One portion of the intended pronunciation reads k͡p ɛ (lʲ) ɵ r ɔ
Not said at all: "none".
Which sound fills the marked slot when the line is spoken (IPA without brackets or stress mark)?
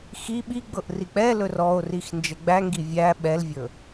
l